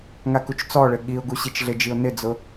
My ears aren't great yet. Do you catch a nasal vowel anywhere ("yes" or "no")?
no